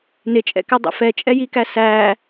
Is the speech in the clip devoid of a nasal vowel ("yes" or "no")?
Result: yes